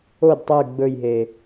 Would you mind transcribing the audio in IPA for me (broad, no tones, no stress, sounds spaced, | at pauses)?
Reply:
o d tˤ ʉ ɡ͡b ɵ j ɦ e